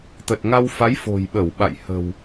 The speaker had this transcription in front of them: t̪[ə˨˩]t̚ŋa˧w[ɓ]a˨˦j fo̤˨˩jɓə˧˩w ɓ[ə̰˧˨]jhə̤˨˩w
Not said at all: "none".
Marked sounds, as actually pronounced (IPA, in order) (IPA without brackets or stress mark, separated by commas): ə˨˩, f, a̰˧˨